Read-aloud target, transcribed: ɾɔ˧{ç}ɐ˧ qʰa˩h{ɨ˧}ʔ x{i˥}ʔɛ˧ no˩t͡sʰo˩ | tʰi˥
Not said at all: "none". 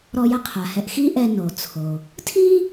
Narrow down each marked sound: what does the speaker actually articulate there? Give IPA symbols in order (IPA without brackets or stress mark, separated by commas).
j, ɛ˧, i˥